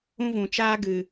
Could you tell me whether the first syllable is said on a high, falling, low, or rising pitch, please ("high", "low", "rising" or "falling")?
high